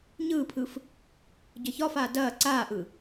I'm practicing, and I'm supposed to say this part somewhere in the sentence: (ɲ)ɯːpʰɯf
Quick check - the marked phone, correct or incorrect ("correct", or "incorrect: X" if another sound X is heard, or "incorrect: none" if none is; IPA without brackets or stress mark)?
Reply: correct